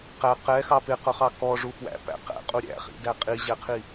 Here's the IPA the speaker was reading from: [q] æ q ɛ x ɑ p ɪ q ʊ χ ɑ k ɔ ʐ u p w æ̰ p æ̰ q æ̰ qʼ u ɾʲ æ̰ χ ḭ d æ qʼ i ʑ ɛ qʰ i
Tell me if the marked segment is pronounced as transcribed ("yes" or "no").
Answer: yes